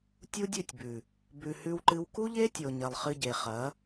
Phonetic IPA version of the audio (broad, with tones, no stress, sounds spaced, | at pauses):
tʲ u˦ dʲ ʉ˦˨ tʲ b ʉ˨ | b ʉ˧ h ʉ˦ w ǃ ɨ˦ w k u˦ ʎ e˦ tʲ o˨ ɲ ɐ˨ lˠ χ ɨ˧ ɟ e˨ χ ɐ˨˦